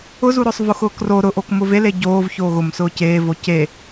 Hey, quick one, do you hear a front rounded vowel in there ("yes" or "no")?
no